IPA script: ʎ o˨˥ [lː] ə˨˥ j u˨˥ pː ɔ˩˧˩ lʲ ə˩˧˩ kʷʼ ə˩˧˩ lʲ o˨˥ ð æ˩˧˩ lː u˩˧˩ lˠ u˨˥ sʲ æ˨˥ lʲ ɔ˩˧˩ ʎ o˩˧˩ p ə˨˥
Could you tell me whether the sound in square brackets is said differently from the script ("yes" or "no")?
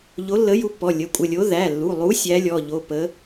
no